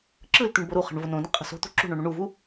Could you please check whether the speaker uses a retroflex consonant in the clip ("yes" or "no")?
yes